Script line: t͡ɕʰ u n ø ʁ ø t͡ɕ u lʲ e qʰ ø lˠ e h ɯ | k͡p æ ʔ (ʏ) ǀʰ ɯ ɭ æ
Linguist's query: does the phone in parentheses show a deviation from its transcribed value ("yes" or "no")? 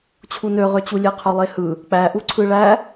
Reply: yes